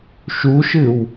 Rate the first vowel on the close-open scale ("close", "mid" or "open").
close